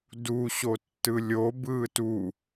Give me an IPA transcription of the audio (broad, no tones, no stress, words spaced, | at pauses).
du ɕotːɯlʲo bɯːtu